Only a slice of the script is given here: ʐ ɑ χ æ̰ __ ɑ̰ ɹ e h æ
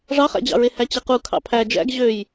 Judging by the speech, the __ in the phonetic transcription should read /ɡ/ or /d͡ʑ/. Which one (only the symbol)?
d͡ʑ